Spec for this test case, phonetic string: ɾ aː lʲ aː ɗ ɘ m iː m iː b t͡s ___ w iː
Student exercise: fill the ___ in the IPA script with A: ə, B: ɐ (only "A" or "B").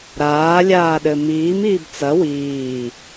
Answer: B